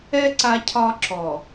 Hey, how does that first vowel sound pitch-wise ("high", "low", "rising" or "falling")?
high